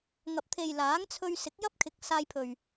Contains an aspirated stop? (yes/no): yes